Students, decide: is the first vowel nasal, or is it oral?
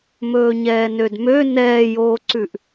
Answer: oral